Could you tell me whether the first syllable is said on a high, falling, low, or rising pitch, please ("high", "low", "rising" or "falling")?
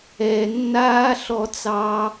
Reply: low